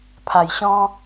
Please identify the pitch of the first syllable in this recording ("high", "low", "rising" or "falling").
low